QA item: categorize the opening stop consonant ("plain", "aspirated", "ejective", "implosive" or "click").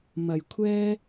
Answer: aspirated